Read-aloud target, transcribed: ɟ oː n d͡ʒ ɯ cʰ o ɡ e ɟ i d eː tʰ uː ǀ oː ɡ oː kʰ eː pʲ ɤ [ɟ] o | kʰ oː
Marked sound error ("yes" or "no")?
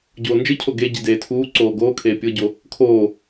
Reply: no